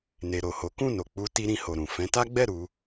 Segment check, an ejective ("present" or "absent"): absent